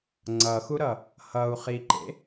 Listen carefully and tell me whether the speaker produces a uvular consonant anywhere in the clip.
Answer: yes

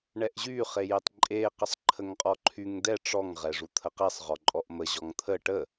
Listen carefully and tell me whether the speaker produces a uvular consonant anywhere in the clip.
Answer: yes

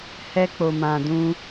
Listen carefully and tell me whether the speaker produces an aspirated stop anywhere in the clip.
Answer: no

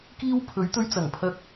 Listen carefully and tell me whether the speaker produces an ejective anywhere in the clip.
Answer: no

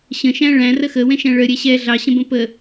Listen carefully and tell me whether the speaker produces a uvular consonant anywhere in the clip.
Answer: no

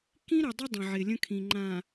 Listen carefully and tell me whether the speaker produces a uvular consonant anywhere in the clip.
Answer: no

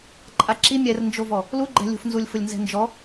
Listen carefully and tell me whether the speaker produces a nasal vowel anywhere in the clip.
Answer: no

